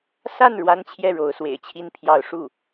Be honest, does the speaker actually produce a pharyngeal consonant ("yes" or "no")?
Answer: no